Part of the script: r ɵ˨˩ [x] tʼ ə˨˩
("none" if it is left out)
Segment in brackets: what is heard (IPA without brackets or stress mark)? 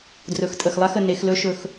x